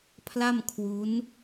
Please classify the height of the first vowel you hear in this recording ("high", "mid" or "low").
low